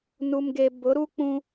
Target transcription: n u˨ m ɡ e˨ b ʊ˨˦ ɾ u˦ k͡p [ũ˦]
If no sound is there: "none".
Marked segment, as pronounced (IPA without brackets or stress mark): ũ˦